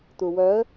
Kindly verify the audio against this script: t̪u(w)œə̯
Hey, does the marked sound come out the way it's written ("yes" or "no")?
yes